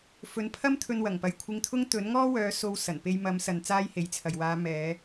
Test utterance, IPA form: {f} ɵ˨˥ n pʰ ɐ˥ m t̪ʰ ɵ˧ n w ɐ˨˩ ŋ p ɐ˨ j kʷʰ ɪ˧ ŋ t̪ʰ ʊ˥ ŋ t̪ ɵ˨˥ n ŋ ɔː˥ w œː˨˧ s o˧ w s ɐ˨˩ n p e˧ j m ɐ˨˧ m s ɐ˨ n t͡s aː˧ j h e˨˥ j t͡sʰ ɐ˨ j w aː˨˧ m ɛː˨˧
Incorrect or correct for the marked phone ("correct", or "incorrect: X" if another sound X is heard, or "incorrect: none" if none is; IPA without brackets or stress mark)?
correct